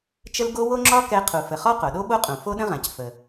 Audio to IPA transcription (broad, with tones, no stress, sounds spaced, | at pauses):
t͡ʃ ə˥ l ɡ o˥ w o˥ ŋ͡ǁ ɒ˥ k ɛ˥ qʰ u˩ f ə˩ χ ɒ˥ q o˩ ɗ o˥ ɓ o˥ qʼ ũ˩ f o˥ ɗ ə̃˥ ʁ ã˩ c f ə˩